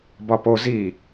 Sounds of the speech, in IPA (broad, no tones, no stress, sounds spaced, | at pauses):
b ɒ p o z i